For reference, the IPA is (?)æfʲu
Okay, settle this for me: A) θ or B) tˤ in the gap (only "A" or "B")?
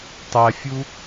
B